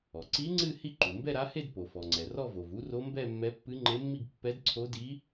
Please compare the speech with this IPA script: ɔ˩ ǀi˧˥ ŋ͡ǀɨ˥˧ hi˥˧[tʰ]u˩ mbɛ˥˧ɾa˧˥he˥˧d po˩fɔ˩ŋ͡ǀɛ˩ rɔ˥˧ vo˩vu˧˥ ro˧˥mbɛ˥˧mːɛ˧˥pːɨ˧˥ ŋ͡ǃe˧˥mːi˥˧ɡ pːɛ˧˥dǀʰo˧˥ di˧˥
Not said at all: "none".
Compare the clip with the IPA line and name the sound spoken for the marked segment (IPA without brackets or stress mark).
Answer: ǃ